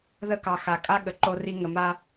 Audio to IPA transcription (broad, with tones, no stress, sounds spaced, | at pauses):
ð ə˦˨ k ɑ˨ x a˨ kʼ a˦ ɠ ə˨ ǃ o˦ r i˦ ŋ ə˨ m a˦